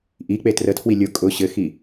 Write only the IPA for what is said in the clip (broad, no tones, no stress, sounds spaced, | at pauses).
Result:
ʔ i k͡p e t r ə tʰ w i lʲ ʊ kʼ ʊ ɕ ɘ x i